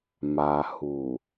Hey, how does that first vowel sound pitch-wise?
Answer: low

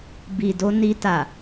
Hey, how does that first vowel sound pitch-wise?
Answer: low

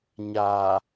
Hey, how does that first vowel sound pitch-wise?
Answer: low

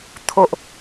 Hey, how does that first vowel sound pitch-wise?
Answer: low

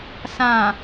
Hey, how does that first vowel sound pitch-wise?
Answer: low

